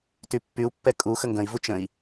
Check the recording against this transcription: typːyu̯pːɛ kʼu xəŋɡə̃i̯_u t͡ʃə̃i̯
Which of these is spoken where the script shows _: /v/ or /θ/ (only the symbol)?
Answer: v